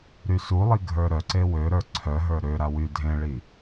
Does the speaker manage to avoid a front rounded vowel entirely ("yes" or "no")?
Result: no